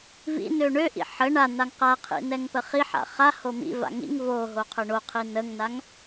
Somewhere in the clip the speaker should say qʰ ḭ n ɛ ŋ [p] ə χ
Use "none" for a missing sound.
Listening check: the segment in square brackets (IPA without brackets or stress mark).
p